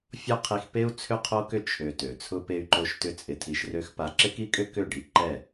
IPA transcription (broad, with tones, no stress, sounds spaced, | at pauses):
fʲ ɔ˦ qʰ i˧ x p e˦ u̯ t͡sʰ ʏ˦ qʰ o˦ k ʏ˦ t͡ʃʰ ø˧ t ø˨ t͡sʰ ʊ˧ p e˧ y̯ ǃ o˧ ʃ t ʏ˦ t͡sʼ ɪ˧ tʰ i˧ ʃ r ø˦ x p a˧ ǁ ɪ˦ k i˦ kʼ ʏ˦ k ʏ˦˨ ɖ i˧ ǃ ɛ˦˨